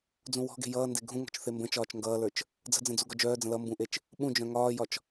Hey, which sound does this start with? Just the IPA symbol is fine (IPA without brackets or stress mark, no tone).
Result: d͡z